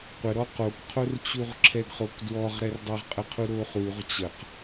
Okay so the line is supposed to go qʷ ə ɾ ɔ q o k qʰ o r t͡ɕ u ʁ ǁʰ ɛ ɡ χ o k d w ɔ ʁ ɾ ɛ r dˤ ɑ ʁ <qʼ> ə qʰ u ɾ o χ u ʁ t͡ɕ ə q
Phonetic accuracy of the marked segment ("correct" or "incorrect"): correct